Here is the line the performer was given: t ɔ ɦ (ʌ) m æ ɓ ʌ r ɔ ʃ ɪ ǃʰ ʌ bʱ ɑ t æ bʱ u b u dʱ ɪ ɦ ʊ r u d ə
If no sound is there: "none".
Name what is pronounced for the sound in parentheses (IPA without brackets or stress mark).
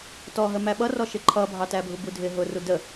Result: ə